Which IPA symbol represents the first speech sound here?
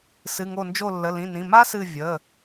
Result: s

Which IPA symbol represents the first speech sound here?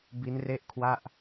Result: b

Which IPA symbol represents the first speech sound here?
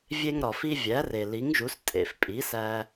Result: vʲ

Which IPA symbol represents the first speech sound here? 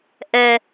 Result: ʔ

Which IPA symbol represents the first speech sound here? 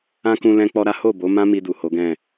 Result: ã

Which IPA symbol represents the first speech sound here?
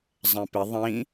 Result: zˤ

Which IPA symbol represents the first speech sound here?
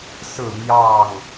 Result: s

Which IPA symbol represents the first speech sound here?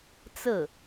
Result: t͡s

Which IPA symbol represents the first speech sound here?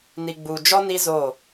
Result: n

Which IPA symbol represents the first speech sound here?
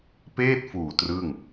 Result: p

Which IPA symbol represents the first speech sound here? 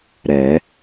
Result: ɾ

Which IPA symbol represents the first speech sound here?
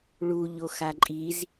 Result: ɭ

